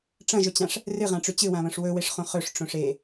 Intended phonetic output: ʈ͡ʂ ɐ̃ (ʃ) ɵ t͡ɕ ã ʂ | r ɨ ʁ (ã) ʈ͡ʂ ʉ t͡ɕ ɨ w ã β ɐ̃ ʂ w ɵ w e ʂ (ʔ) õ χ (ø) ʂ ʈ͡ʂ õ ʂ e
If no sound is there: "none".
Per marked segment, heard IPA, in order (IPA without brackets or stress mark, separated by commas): ʒ, ã, χ, ɵ